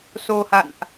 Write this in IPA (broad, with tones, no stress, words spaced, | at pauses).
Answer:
so˧ha̰˧˨nʔ